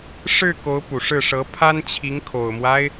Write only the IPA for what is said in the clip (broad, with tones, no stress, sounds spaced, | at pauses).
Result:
ʂ ɻ̩˥˩ k o˧˥ ʊ̯ p u˨˩ ʂ ɻ̩˥˩ ʂ ɤ˧˥ pʰ a˥ n t͡ɕʰ i˧˥ ŋ kʰ o˨˩ ʊ̯ m w a˦ ɪ̯